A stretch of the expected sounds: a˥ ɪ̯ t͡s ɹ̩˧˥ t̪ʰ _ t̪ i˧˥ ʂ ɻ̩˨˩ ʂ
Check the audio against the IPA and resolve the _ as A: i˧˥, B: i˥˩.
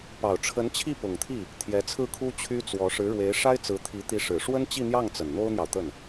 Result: A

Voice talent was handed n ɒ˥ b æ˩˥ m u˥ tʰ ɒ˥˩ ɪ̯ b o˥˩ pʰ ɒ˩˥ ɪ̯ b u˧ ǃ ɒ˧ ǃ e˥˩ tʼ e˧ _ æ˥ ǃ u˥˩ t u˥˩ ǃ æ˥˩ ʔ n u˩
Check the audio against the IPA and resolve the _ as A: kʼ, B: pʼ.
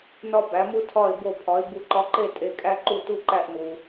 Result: A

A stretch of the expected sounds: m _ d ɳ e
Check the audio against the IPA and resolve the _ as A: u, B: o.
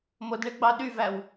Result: B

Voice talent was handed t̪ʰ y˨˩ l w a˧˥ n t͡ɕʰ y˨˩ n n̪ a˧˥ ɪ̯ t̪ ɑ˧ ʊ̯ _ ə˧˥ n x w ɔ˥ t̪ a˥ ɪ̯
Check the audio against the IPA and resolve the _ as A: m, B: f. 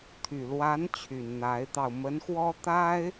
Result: A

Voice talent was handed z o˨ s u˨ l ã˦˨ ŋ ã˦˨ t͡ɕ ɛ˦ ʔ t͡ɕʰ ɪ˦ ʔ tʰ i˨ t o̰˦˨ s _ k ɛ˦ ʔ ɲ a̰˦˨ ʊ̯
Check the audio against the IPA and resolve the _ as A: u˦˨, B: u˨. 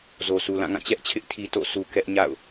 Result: B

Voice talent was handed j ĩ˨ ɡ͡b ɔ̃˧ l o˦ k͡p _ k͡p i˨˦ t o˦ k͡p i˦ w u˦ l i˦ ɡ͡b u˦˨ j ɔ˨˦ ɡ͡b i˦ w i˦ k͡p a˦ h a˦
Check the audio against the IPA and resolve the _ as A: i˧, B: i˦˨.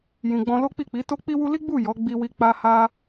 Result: B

